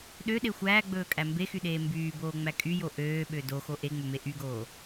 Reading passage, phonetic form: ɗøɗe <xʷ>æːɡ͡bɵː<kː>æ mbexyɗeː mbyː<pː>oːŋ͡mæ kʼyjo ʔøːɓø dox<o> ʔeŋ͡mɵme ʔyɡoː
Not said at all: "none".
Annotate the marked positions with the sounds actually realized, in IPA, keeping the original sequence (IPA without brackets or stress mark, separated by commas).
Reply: xʷ, kʼ, b, o